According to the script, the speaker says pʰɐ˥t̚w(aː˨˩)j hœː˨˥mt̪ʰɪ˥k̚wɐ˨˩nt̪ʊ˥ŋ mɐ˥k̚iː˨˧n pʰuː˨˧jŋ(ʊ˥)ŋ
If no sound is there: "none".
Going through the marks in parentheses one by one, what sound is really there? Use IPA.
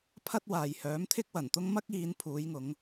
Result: aː˨, ʊ˨˧

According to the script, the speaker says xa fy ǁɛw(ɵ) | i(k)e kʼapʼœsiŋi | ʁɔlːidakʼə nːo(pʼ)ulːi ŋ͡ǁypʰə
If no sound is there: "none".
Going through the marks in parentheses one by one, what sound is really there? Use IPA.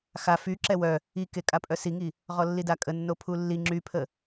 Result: œ, k, pʰ

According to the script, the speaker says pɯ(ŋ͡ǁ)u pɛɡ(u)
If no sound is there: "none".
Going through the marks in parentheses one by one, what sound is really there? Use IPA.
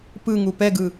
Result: ŋ, ɯ

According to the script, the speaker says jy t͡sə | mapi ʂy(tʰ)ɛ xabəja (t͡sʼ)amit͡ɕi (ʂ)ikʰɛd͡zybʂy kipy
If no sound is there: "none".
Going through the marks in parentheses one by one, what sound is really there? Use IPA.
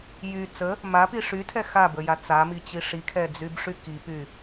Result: tʰ, t͡s, ʂ

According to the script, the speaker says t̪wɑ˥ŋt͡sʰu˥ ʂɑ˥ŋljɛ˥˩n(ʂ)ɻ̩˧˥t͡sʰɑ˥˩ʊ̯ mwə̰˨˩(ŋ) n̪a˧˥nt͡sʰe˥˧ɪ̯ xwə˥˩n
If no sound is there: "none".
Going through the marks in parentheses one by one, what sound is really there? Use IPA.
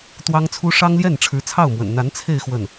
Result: ʈ͡ʂʰ, n

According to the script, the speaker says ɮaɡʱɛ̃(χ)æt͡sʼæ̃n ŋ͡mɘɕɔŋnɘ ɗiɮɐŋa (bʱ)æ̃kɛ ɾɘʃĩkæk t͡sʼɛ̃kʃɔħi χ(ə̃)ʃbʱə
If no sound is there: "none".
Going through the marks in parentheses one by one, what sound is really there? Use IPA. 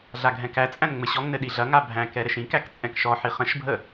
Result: k, bʱ, ə̃

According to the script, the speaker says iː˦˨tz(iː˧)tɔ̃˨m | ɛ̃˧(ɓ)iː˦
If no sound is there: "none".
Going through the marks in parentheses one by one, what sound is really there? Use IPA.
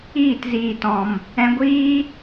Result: iː˨, ɡʷ

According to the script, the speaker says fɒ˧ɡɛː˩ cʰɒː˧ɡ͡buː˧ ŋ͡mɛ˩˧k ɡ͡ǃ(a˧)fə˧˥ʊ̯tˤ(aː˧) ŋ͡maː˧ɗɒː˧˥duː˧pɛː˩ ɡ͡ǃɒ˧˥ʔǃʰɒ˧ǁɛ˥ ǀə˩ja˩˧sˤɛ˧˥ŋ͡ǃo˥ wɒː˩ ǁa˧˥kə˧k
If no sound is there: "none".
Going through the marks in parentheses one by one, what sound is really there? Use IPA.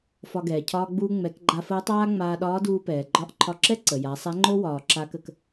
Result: a˧, aː˥

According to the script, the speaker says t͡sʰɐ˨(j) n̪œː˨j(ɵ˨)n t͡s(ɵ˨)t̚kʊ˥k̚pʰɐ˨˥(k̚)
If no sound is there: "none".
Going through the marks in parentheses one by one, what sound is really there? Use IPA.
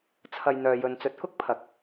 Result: j, ɵ˨, ɵ˨˥, k̚

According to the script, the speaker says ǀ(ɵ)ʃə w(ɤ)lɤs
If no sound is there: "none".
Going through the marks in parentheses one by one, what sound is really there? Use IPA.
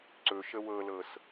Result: ɵ, ɤ

